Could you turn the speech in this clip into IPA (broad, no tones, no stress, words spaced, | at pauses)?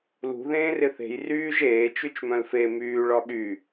lṳ ðẽːrɪθe̤j ryːʒ eː t͡ʃyt͡ʃmœ̃lfe myː ɭɒɠy